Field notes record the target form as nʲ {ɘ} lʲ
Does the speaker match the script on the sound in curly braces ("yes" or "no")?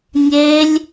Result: no